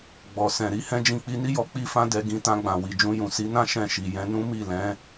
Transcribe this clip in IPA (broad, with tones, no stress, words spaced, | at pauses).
ɡ͡bɔ˨sɛ̃˨ ɾi˨˦hɛ̃˦d͡ʒĩ˦˨ k͡pi˧ni˦jɔ˧ k͡pi˦fã˦dɛ˧ ɡĩ˧tã˧ɡ͡bã˨ wi˨d͡ʒũ˧jũ˨ si˨˦nã˦ ʃɛ̃˦˨ʃi˨jɛ̃˧ nũ˦mi˦˨lɛ̃˨˦